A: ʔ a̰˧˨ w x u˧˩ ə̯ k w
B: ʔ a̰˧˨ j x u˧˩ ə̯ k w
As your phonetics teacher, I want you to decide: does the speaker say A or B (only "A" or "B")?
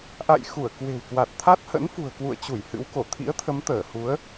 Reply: B